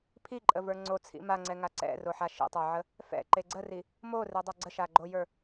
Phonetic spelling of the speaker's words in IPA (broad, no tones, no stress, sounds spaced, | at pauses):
pʰ i ǃʼ ə v ə˞ ŋ͡ǀ o t͡sʰ ḭ m a ŋ͡ǀ ɛ ŋ a ǀ ɛ̰ r o ħ a ʃ ḭ tˤ ə˞ ʕ ə | f ɛ̰ ǃ e ɡ͡ǀ ə r i | m o r e dˤ a ɡ͡ǀ ə ʃ a ɡ͡ǃ o j ə˞